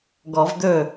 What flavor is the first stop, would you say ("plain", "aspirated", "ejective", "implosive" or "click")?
plain